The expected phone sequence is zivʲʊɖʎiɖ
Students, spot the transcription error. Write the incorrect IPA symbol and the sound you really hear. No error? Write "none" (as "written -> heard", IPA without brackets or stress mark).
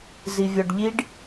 ʊ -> ɔ